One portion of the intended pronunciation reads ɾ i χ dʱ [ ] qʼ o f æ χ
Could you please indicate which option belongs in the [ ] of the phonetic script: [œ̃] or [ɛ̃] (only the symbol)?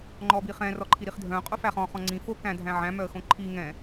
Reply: œ̃